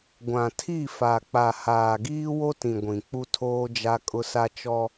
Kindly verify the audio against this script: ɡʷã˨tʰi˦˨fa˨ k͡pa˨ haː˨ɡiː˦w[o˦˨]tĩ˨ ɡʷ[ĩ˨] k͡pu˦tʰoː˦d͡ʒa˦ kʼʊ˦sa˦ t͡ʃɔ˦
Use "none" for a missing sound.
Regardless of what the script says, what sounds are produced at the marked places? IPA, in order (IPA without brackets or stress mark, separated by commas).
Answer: o˦, ĩ˨